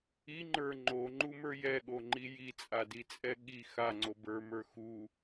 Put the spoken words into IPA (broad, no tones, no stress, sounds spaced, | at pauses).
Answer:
i ŋ͡ǃ ə˞ ŋ͡ǃ o ŋ͡ǃ u m ə˞ j ɛ ɠ o ŋ͡ǃ i j i t͡sʼ a d i t͡sʼ ɛ ɠ i x a ŋ͡ǀ o b ə˞ m ə˞ x u